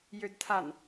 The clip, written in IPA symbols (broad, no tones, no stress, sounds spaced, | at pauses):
j ø d tʰ a n